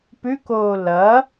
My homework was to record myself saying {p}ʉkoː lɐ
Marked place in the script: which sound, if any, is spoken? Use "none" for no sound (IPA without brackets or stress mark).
p